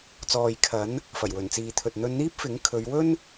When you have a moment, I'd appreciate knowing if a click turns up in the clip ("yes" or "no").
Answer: no